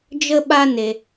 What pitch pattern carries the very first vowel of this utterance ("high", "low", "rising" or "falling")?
high